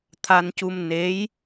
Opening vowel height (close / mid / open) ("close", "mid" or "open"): open